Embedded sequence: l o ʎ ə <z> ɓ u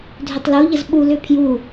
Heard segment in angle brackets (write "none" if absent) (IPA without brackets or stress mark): z